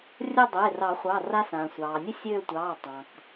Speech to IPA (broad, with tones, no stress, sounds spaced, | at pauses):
rʲ ə˦˨ dˤ e˩˧˩ r ɑ˨˩˦ χʷ ɑ˩˧˩ r a˦ s ãː˩ sʷ ɑː˩ nʲ ə˦ sʲ øː˦˨ tʷ ɑː˩˧˩ tˤ ɑ̃˩ k